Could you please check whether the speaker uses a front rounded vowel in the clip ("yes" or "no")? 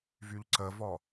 yes